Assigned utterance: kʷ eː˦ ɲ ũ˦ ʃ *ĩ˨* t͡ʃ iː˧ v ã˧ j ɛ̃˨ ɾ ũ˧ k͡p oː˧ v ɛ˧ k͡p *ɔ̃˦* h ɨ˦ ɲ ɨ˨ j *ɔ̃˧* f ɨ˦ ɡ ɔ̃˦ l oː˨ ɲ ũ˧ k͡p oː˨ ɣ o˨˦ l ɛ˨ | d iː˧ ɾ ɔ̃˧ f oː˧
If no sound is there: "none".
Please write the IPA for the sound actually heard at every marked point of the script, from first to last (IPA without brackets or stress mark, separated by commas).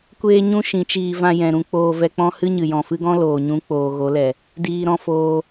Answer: ĩ˨˦, ɔ̃˦, ɔ̃˨